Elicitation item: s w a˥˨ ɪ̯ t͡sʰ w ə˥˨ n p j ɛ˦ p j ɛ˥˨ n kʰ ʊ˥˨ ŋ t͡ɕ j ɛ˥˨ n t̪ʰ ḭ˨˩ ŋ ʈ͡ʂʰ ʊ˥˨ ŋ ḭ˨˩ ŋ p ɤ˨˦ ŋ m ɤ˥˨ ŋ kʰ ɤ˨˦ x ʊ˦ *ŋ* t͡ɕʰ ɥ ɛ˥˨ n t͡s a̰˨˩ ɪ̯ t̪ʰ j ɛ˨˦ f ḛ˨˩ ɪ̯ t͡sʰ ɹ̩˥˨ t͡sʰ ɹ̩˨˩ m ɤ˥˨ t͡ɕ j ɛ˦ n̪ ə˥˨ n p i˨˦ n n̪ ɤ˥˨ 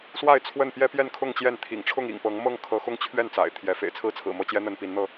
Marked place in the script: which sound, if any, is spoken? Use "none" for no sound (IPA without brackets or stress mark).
ŋ